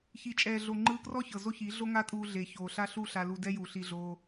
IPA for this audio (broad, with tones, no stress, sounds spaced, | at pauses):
ç i˨ t͡ʃʼ ɛː˨ ɮ o˨ ŋ͡ǃ ɯː˧ k r ɔ˦ ç ɤ˨ z o˦ ç i˨˦ ɮ o˦ ŋ a˦ tʼ uː˧ ɮ e˨ ç oː˨ ɬ a˦ ɬ u˦˨ ɬ a˧ l u˧ d ɛ˦ j u˨ ɬ i˧ ɮ oː˧